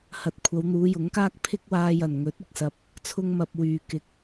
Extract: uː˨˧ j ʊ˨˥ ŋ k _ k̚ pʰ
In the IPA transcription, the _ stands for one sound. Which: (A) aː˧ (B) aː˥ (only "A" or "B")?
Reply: B